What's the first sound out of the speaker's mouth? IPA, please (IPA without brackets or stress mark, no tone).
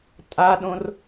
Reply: tʼ